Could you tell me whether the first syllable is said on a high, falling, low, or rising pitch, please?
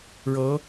rising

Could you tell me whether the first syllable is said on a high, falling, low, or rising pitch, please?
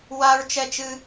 high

